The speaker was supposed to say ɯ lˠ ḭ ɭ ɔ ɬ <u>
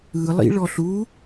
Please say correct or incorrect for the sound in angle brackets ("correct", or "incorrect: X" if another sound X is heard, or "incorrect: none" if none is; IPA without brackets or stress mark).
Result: correct